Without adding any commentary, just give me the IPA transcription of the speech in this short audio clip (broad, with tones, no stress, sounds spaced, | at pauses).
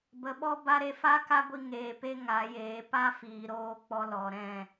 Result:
b ə˨˦ ɓ ɔ˦ b a˦ ɾ e˧ f a˦ k a˦ ɡʷ i˧ ŋ eː˨ p e˦ ŋ a˨˦ j eː˨˦ p a˦ f iː˨ ɾ oː˧ k͡p ɔ˧ l ɔ˨ ɾ ɛ̃˦˨